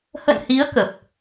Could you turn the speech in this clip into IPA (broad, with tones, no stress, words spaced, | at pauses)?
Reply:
hə̰˧˨nhi˨˦ə̯ kə˨˩p̚